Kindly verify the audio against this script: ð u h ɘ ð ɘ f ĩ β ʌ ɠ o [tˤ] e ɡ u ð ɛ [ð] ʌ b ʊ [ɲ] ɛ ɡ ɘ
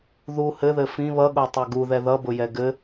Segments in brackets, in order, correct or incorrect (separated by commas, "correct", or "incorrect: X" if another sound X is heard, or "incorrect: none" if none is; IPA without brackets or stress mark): correct, correct, incorrect: j